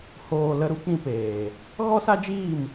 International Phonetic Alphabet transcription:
hoː˨ lə˧ɾu˦ k͡pĩ˧peː˨ | ɣɔ˦sa˦d͡ʒiː˦˨m

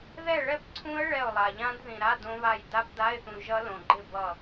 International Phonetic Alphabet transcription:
ðɛ˥˨ɭɛ˥˨pǀʰũ˦˥ə̯ ɭɛ˥˨ʊ̯lˠa˨ ʎã˦˥dðĩ˨ɾa˧˥˧ dõ˦˥βa˥˨j da˦˥pda˧˥˧ɪ̯θũ˨ ʒʌ˦˥lõ˨ɡ͡ǃɪ˥˨ bʌ˥˨

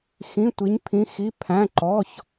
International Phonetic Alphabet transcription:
xĩ˩˧˩tʷi˩˧ɲpʰĩ˩˧xi˩˧˩ pʰæ̃˩˧˩ǃɔ˩˧˩ç

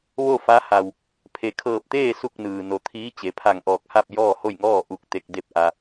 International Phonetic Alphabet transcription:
ʋo˥˨fa˧˥ha˩w | pʰe˩kʰɤː˧˩p̚t̪eː˥˨ su˥˨k̚nɯː˩ no˩t̪ʰiː˧˥ t͡ɕe˩˧pʰa˧˩ŋʔɔː˧˩k̚ha˥˨p̚ jɔː˥˨ho˥˨jŋɔː˥˨ ʔu˧k̚t̪e˧k̚de˥˨p̚ʔa˧

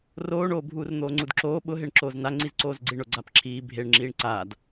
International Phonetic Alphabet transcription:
roːɳoː bʱuːrn̪oːŋ͡ǀudǁoː ɓʊɦeɳ ǁoːznaŋ͡ǀiz ǀoːzɡ͡ǀiɳʊ ɡ͡ǀapǁʰiː bʱeɳŋ͡ǁiːɳ ǀaːd

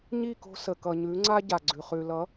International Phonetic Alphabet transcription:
ɲi˦˨ko̤˧ sə˨kʌ˨ɲʉ˨˦ ŋ͡ǀa˦ɟa˨ɡ͡ǀʉ˨ χʉ˨ lʌ˨˦

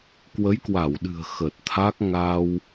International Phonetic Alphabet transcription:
kwə˨˦jkwa˧˩wɗɨ̤˨˩ə̯ xə˨˩t̚t̪ʰa˦˥k̚ ŋa˧w

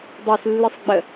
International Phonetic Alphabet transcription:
dˤeslːɨsˤ ɡ͡bə

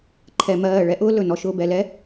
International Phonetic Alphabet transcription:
ǃʰɛ˧mɜː˦˨ ɭɛ˦ʔʊː˦ lɵ˨ nɔ˦ʃʊː˦bɛ˧ lɛ˦

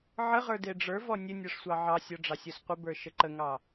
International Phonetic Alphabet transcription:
ʕəʁə˞ deɖ͡ʐə˞vɔ nʲə nʲɔʂsʷɑʕɑsʲɔ ɖ͡ʐɑsʲɔsqʷəbə˞ ʃəǃəŋɑ

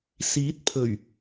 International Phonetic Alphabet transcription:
siː˨˥t̚pʰɵ˨˩ɥ

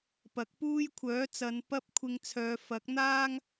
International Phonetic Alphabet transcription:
pɐ˨˥k̚puː˥j kʷʰœː˨˥t͡sɐ˨˧n pɐ˥p̚kʷʰɪ˧ŋt͡sʰœː˨˧ fɐ˨˥k̚n̪aː˥ŋ

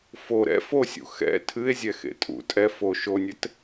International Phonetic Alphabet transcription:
fo ɾɛ̰ fosʲṵ xɛ̰ tʰɨe̯zʲɛxḛ tʼṵ tʼɛ fo ʃonʲɘt

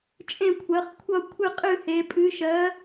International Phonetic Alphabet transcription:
t͡ʃʼẽ˥˨kʷʰɜ˨˥χkʷʰʌ˥˨ kʷʰɨ˥˨qʼɨ˥˨he˨˥ pʼɨ˨˥ʃɜ˨˥

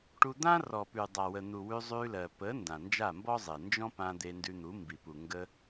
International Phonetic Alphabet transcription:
ʈu˧d̪ã˦rɔ˨ pʉ˨dˤa˨wə˨n̪u˨ wʉ˧zˤʉ˧lɜ˨ pə˨˦ ndã˨nd͡ʒa˦˨mbɔ˦zˤe˨ nd͡ʒɔ̃˦pã˧ d̪e˧ndʉ˧n̪u˨˦ mbi˨pu˨ ŋɡə˧

